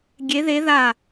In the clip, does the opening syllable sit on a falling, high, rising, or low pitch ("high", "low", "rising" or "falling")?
rising